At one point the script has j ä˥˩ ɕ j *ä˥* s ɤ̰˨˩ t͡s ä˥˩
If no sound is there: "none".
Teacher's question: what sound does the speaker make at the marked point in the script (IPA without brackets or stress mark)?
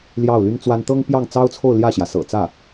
ä˩